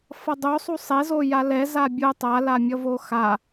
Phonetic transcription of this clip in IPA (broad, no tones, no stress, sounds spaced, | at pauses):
f ʌ dˤ o sˤ u sˤ e z o j a l ɛ z a bʲ o tˤ a l a mʲ ʌ v o x a